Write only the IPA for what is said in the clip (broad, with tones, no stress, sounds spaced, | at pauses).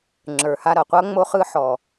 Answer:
ŋ͡ǁ ə˞˨ h a˧ ɾ ʌ˨ qʷ ʌ˦ ŋ͡m o˧ χ ɯ˧ ħ ɔ˨